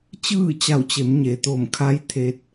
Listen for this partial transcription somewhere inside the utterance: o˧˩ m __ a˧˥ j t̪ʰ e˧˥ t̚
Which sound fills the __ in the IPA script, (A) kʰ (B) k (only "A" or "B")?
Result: A